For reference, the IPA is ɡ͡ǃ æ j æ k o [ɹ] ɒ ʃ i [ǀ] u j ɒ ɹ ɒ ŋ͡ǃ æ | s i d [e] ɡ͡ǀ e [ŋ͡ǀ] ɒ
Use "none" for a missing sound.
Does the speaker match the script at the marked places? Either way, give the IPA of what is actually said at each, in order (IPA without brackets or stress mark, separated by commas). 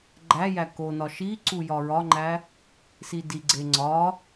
n, ǀ, i, ŋ͡ǀ